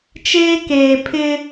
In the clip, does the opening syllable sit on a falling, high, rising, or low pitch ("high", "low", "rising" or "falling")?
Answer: high